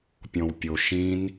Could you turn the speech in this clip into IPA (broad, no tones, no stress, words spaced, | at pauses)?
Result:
pʲɔ̃wpʲo ʃĩn